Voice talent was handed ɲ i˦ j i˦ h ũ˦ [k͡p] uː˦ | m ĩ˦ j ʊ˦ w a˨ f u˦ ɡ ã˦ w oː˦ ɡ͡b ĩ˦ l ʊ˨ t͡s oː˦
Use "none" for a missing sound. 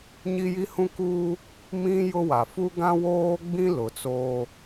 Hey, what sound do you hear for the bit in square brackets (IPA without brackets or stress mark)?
k